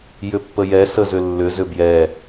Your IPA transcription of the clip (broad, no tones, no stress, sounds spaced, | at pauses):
j ʏ pː ə j ɛ s ə z ʏ lː ʏ z ʏ b j ɛ